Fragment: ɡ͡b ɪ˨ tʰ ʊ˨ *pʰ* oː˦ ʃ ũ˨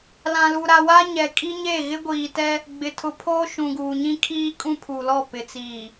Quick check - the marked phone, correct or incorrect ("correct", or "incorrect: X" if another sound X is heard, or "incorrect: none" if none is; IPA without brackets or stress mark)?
correct